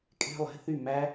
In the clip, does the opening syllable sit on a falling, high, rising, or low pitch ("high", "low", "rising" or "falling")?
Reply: falling